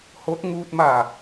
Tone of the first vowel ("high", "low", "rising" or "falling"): rising